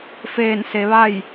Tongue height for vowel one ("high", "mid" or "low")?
mid